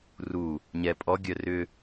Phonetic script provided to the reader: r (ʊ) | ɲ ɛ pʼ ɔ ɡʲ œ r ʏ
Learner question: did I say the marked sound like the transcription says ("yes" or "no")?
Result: no